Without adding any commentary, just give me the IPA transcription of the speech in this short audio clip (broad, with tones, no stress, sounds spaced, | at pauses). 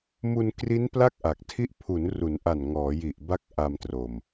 m u˧ n k r i˦˥ n p l a˥˩ k̚ ʔ a˨˩ k̚ tʰ i˦˥ ʔ pʰ u˩˦ n r u˩˦ n ʔ a˨˩ n ŋ ɔː˩˦ j i˨˩ ʔ b a˦˥ k̚ ʔ a˧ m t r o˨˩ m